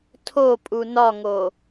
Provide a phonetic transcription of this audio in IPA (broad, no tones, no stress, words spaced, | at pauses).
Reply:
tʰopʼu nɒŋo